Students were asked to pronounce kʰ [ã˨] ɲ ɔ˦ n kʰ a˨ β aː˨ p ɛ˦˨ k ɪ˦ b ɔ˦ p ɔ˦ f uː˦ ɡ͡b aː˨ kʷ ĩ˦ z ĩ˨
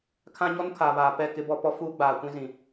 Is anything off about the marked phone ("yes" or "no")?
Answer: yes